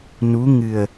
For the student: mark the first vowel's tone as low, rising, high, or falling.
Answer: rising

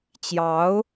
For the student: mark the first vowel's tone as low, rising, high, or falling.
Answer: rising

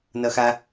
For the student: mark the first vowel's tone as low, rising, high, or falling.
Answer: high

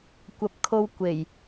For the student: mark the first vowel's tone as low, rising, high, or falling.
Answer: low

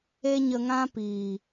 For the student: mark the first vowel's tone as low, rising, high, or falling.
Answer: high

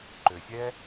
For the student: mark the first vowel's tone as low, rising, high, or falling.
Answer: low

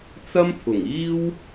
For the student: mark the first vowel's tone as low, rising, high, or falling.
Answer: high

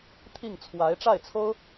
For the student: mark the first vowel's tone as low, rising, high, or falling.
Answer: falling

